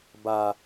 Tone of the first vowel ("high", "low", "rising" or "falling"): low